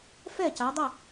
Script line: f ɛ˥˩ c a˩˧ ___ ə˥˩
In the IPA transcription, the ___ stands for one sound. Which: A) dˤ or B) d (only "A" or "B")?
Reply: A